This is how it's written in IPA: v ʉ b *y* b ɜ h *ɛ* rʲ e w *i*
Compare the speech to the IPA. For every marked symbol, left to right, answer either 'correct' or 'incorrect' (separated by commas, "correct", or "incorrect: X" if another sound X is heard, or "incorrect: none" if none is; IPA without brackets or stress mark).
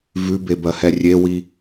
incorrect: e, correct, correct